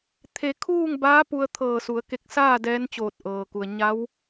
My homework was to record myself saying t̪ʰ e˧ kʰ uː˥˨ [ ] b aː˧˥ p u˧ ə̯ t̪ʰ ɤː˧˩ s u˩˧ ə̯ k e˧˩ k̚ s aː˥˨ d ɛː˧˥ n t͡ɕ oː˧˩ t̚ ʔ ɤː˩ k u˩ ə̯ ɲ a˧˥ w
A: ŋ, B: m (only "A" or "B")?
A